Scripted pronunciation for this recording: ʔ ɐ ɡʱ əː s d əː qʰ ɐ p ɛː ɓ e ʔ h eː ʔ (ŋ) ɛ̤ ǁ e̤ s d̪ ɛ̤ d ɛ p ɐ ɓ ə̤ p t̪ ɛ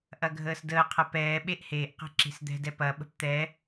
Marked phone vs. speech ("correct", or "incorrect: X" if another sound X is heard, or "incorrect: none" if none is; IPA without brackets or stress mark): incorrect: q